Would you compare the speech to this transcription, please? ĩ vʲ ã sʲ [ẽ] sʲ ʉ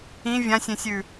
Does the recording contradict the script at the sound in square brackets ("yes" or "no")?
no